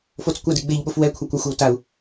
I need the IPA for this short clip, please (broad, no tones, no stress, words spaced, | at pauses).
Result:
fot͡skʷadiɡ͡beʎ ɓofwɛ kʷʰakʷaxʷɛwtau̯